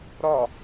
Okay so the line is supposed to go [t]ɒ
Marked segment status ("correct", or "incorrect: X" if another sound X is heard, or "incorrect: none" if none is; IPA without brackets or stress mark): incorrect: ɾ